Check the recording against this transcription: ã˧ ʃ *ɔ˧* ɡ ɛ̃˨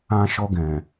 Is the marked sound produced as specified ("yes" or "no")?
yes